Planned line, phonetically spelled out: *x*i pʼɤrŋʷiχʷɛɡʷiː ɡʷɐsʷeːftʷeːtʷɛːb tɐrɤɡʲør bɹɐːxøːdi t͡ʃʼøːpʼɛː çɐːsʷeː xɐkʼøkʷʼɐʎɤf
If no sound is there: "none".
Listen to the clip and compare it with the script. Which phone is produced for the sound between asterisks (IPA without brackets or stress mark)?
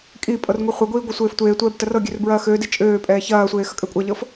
kʼ